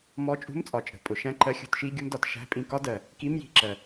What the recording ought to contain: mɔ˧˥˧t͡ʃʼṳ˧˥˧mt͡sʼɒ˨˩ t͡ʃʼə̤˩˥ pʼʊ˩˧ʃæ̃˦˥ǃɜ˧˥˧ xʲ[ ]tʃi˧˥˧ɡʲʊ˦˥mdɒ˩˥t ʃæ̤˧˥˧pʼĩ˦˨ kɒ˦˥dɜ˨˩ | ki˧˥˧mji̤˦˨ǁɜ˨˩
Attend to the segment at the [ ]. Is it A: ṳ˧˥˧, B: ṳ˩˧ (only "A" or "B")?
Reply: A